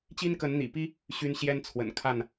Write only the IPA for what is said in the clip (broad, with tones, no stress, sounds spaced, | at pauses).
t͡ɕ i˦ n k ə˨˦ n n̪ ḭ˨˩ p i˦ | ɕ y˦ n ɕ j ɛ˦ n t͡sʰ w ə̰˨˩ n kʰ a˥˨ n